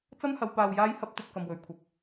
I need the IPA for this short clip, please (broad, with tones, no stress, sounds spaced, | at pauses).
t͡s ɐ˥ m h ɐ˨˧ w p aː˧ w j aː˥ j h ɐ˥ p̚ t̪ ɐ˧ p̚ k ɐ˨ m w ɵ˨ ɥ kʷʰ ɐ˨ p̚